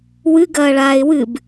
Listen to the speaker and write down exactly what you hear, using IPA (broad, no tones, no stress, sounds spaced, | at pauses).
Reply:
w ɨ ɡ ɐː ɭ aː ɪ̯ w ɨ b